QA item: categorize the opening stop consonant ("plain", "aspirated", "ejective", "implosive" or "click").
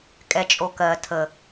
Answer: ejective